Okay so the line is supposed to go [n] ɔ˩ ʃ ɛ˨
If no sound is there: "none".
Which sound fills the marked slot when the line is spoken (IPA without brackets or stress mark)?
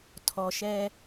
tʰ